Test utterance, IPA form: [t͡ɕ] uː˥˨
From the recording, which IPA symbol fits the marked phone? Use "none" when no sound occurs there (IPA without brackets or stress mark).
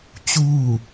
t͡ɕ